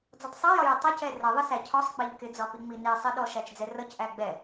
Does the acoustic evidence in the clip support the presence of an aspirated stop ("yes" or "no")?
yes